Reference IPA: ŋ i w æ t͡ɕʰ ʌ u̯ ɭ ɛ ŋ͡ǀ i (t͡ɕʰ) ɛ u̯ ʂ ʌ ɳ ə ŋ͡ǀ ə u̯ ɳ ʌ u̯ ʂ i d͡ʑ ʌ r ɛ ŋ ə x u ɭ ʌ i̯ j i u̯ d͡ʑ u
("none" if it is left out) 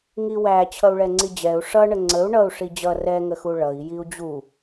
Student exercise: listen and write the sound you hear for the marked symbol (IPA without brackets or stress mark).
d͡ʑ